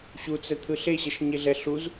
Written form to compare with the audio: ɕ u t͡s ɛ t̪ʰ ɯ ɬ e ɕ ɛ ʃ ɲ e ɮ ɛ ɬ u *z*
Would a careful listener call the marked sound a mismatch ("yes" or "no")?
no